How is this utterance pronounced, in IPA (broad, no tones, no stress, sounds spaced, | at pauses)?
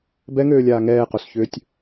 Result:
b ɛ ŋ øː lʲ aː ŋ ɛː q o s ç ʏː tʲ